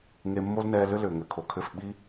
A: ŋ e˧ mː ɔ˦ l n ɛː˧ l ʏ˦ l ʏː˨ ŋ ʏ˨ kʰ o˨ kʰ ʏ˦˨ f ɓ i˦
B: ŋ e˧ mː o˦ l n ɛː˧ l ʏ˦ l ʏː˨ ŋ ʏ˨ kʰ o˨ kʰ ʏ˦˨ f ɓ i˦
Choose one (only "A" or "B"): B